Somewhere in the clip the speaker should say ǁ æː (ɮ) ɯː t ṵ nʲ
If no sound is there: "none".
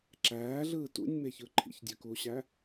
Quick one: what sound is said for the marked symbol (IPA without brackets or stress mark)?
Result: ɮ